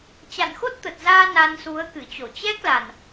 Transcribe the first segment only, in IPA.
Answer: t͡ɕ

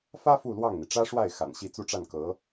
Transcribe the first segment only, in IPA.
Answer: f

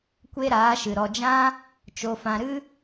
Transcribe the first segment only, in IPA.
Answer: kʷ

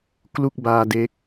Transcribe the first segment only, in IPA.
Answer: k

